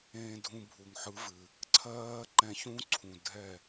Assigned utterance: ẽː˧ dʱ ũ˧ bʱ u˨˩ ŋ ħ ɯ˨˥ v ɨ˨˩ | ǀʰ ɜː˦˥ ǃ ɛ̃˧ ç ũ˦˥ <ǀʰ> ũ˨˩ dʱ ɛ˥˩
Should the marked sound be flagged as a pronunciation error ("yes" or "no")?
no